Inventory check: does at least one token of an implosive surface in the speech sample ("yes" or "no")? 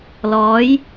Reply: no